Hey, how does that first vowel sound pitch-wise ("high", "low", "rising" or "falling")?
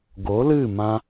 rising